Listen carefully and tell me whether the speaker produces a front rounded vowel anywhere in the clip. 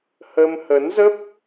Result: no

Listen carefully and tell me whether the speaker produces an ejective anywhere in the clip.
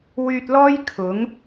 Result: no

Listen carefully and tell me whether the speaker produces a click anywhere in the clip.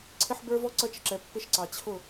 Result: yes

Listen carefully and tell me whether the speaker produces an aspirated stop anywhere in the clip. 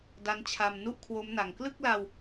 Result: yes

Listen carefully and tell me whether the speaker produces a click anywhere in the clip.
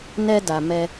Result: no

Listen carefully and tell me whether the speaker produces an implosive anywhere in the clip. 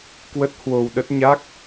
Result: yes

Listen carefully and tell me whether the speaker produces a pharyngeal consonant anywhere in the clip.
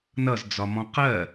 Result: no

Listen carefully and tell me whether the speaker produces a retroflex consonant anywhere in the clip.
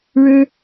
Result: yes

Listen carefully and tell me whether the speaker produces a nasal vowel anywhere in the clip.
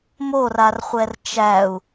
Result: no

